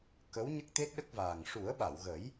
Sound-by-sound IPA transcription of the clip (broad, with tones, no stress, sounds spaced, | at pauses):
k ə˧˥ w ɲ ə˦˥ k̚ t̪ e˦˥ t̚ ɗ ə˦˥ k̚ v aː˨˩ ŋ ʂ u˨˩˦ ə̯ ɓ a˨˩˨ w ɣ ə˨˩˦ j